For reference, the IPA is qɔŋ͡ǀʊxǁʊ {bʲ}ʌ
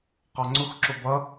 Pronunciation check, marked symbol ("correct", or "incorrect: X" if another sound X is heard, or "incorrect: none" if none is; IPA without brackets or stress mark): incorrect: b